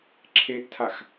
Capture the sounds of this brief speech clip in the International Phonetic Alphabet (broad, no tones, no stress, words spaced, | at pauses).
ǁʰeʔtʰax